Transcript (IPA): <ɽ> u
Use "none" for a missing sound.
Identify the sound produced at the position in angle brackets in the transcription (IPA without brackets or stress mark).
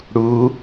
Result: ɽ